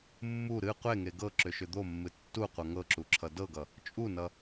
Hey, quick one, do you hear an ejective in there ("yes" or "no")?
yes